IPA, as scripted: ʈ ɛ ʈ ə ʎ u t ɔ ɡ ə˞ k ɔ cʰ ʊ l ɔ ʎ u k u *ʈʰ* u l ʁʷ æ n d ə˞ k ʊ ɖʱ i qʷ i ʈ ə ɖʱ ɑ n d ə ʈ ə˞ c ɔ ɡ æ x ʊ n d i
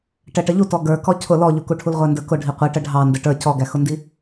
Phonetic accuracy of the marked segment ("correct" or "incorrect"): correct